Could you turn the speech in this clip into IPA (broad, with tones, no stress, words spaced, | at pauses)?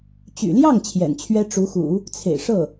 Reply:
t͡ɕy̰˨˩ljɑ˥˩ŋ t͡ɕʰjɛ̰˨˩nt͡ɕʰɥɛ˥ ʈ͡ʂu˧˥xṵ˨˩˦ | t͡sʰḛ˨˩ɪ̯ʂɤ˥˩